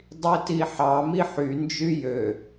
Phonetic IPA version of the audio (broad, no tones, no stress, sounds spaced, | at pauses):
dˤ i t i ħ ɑ m i ħ y n d͡ʒ y j ø